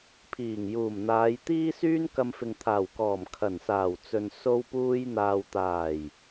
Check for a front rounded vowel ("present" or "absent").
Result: present